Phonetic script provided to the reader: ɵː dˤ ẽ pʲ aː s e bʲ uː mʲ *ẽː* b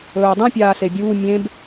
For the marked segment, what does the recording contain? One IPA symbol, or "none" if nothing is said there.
ẽ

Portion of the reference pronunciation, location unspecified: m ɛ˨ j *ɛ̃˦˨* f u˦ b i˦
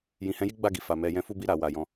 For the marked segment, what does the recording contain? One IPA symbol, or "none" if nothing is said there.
ɛ̃˧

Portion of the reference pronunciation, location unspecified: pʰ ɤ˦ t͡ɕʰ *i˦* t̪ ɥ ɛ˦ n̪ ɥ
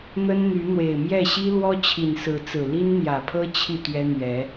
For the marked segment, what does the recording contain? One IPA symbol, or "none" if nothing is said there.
i˥˨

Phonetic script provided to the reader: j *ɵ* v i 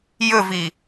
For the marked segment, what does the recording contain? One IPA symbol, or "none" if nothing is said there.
ɵ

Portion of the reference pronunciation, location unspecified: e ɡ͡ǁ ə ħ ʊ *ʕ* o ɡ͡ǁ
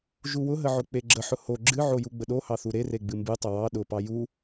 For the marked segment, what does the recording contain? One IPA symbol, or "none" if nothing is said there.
h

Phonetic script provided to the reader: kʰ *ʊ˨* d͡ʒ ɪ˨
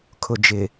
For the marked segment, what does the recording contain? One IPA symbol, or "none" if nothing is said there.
ʊ˨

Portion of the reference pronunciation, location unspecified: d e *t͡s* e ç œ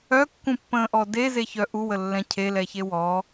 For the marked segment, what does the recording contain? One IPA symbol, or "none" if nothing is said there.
z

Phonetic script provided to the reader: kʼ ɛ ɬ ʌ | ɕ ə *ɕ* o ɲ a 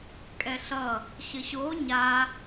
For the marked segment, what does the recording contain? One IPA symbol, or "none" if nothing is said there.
ɕ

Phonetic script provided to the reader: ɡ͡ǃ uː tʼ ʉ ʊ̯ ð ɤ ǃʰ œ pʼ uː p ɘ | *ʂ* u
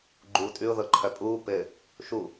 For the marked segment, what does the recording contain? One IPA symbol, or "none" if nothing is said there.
ʃ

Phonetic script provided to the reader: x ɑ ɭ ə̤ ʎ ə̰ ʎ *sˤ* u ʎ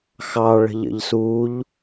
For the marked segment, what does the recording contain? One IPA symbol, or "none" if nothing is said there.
s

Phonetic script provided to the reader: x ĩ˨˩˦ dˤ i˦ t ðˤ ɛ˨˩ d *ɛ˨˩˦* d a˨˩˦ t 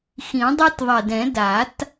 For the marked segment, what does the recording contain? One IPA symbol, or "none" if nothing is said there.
ɛ̃˨˩˦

